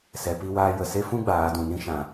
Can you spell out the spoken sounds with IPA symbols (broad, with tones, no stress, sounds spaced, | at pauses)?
s ɛ˨ p i˧ w aː˧ j ə˨ s e˦ f ũ˦ ɡ͡b aː˨˦ d ũ˨ n ĩ˦ ʃ ã˨